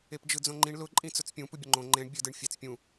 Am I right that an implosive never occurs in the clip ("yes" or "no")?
yes